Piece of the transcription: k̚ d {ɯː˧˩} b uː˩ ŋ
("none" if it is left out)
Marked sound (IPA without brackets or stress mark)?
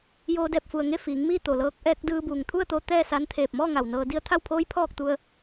ɯː˧